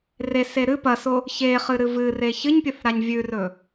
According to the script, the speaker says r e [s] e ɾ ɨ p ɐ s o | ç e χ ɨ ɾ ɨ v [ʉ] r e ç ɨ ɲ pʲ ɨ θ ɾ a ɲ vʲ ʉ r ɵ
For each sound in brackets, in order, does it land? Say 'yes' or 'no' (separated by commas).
yes, no